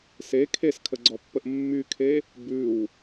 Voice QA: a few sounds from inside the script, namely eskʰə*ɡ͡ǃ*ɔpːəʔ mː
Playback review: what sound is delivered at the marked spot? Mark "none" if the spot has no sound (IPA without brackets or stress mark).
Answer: ɡ͡ǀ